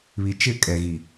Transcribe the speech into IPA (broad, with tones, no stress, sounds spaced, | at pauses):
β i˨ t͡ʃ ɪ˦˨ kʼ ɛ˨ ɣ i˨